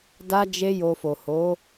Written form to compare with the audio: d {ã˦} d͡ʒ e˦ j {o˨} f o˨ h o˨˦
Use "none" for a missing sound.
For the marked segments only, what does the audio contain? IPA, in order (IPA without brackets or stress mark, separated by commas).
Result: a˦, o˧